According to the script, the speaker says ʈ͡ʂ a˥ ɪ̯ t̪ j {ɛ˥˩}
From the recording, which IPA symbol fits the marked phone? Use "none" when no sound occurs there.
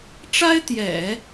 ɛ̰˨˩˦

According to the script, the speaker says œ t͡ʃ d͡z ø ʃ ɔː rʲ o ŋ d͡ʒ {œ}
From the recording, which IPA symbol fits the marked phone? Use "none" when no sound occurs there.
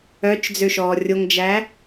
æ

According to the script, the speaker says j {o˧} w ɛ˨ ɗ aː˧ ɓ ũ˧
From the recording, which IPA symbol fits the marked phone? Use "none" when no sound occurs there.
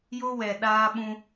o˧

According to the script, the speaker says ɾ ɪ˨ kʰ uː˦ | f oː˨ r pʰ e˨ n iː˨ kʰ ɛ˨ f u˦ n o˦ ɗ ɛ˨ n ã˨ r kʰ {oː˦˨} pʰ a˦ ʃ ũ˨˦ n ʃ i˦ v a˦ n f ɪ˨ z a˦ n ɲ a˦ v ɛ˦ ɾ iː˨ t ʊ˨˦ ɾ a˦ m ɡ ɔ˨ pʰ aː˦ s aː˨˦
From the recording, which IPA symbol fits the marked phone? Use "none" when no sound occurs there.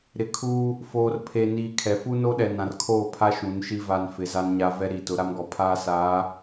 oː˦˨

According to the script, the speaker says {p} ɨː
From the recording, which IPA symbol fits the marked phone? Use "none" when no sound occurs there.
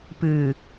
p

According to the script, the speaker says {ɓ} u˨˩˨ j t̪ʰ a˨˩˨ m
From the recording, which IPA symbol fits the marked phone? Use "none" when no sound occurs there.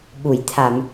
ɓ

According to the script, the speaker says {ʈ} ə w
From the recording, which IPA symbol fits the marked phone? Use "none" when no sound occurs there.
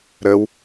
ɾ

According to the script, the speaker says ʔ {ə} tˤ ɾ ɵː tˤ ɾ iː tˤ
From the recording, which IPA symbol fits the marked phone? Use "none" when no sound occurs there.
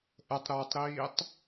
ə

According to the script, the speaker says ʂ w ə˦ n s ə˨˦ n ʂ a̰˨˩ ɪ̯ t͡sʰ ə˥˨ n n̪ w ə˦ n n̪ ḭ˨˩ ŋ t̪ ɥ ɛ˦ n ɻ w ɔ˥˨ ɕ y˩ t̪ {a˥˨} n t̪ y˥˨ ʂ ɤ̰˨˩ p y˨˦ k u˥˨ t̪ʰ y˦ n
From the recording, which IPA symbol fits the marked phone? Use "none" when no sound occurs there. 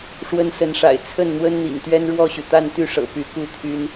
a˥˨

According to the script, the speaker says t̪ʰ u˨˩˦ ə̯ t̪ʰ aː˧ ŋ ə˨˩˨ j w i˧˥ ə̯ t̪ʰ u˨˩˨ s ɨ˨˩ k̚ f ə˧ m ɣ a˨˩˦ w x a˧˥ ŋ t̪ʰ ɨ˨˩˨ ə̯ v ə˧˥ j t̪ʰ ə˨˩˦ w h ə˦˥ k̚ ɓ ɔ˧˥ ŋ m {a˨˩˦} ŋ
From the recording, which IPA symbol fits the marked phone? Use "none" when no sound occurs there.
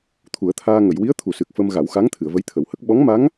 a˧˥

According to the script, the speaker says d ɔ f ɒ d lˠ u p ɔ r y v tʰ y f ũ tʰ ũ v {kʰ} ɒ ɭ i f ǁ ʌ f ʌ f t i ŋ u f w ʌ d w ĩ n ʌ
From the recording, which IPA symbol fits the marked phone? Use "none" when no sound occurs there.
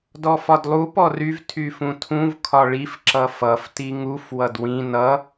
kʰ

